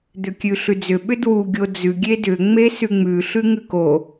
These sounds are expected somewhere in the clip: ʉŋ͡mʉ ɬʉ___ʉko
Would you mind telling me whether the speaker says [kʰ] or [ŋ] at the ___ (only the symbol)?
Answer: ŋ